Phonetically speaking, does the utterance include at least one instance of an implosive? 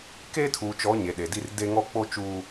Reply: yes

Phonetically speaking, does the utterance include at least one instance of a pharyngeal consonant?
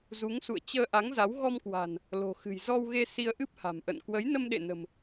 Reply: no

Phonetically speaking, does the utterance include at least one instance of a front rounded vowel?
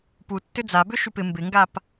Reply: yes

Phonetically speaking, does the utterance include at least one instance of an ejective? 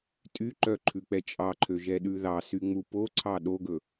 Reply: yes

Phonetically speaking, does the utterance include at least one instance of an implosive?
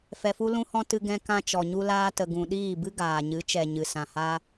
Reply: yes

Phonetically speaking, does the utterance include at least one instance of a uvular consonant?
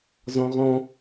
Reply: yes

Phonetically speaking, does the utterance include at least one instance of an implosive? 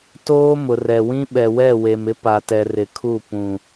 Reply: yes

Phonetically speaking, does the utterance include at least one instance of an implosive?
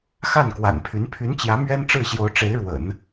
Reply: no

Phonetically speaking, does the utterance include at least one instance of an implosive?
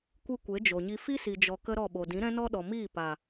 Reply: yes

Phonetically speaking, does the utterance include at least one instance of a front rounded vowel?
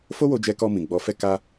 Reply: no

